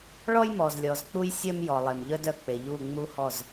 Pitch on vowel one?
high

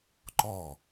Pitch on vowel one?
falling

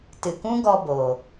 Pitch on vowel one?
low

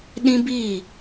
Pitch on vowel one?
high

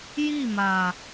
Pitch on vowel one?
falling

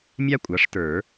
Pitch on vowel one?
high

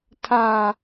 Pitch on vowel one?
low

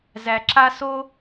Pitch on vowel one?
low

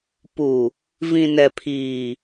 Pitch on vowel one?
low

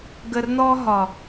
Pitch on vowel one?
low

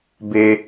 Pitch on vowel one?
high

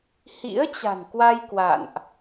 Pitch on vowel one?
rising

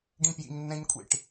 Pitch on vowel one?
high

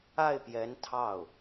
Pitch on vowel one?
falling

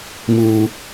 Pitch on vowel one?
high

